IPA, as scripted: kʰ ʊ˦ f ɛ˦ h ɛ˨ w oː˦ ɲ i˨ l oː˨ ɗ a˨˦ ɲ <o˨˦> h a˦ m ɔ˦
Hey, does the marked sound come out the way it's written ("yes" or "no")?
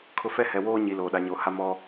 yes